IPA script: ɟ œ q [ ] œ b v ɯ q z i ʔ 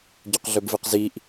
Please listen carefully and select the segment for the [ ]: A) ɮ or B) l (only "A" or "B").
A